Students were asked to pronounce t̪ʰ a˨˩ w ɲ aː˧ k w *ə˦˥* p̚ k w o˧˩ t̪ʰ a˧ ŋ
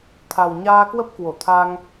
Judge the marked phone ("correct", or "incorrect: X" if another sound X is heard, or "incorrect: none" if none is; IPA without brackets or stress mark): correct